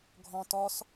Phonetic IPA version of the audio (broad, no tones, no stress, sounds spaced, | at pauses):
ɡʱ ɔ̃ t ɔ s